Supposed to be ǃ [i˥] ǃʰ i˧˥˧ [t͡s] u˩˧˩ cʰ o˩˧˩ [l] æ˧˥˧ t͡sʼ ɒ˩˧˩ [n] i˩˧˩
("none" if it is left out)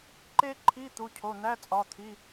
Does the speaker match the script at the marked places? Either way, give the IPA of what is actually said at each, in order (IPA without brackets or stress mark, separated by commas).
e˥, t̪, n̪, t̪ʰ